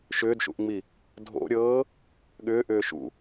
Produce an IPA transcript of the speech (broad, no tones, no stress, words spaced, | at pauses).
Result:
ʃʏːdʃṵʔŋ͡mi | dʱo̰ɾʲɤː | ɠʏː ʔʏːʃṵ